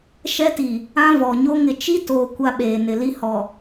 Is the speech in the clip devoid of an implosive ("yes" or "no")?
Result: no